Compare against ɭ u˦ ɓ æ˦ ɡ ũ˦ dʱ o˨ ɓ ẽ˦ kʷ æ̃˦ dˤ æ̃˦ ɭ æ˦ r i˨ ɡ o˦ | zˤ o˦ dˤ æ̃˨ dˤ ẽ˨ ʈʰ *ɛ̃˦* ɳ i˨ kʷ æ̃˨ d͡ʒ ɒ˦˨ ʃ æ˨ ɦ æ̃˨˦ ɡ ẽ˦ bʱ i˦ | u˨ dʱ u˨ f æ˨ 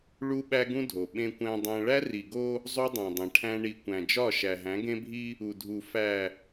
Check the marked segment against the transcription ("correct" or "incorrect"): incorrect